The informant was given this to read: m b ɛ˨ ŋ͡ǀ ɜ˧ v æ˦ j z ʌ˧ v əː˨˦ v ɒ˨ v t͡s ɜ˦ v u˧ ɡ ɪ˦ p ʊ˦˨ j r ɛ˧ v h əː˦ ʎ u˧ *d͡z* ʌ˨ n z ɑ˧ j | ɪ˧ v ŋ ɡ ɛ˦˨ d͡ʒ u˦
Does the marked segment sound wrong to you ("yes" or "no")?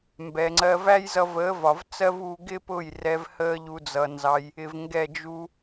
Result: no